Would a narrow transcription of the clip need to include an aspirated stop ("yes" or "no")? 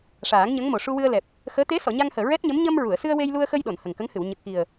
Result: no